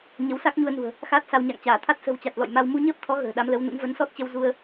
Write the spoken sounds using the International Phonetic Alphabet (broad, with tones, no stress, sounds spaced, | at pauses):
ɲ ə˨˦ w s a˦˥ k̚ ɲ u˧ ə̯ n ṳ˨˩ ə̯ | x aː˦˥ t̚ s a˧ w ɲ a̰˧˨ ŋ t͡ɕ aː˧˩ t̪ʰ a˦˥ t̚ s ə̤˨˩ w t͡ɕ a˨˩ t̚ l ɔ̰˧˨ j m a˧ w m u˧ ɲ əː˦˥ p̚ t̪ʰ ɔ˨˦ ɣ ə̤ː˨˩ ɗ a˨˦ m l ə˨˦ w n ṵ˧˥ ŋ v ə˨˦ n s ɔ˦˥ t̚ t͡ɕ ə˧ w z u˧ ə̯